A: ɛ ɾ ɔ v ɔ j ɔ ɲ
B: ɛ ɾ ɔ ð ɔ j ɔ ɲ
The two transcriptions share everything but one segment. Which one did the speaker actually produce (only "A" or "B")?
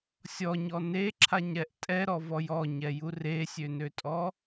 A